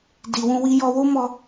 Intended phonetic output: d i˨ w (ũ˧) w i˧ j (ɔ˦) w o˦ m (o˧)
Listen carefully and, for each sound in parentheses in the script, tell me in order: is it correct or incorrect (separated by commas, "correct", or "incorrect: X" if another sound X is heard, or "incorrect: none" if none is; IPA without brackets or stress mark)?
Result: correct, incorrect: ɔ˧, incorrect: ɔ˧